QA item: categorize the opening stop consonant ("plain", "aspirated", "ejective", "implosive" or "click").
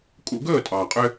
ejective